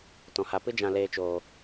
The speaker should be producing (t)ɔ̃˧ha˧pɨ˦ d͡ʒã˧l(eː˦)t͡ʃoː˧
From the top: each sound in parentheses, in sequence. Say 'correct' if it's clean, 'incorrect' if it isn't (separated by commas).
correct, incorrect